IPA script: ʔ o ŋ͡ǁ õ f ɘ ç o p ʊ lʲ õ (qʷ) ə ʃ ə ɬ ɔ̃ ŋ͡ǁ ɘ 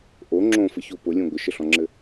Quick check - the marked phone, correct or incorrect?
incorrect